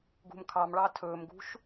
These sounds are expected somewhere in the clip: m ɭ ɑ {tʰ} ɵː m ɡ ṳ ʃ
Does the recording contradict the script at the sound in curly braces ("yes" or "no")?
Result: no